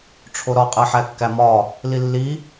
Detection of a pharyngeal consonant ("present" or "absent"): present